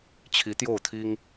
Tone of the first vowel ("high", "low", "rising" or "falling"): rising